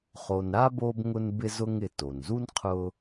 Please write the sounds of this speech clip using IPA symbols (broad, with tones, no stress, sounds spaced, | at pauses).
χ o˨ n ɾ a˥ b o˦ b ŋ ʊ˦ n b ɪ˦ z ʊ˦ ŋ ɪ˨ t o˩ n z u˥ n qʰ ʊ˦